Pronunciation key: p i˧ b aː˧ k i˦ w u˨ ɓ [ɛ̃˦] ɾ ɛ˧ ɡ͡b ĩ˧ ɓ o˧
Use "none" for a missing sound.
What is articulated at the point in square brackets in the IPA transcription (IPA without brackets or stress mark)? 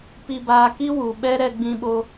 ɛ˦